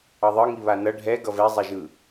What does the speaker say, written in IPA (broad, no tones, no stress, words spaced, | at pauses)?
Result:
ʌðˤɯ ŋiβanʌ ɖʱɛ ɡʌvɛ zˤɛʒɯ